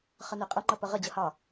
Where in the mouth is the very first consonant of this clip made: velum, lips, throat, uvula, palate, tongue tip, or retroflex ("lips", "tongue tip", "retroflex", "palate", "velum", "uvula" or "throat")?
uvula